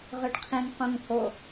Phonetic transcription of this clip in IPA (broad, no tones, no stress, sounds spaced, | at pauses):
ʁ œ ɖ qʰ ẽ ŋ q õ ŋ h o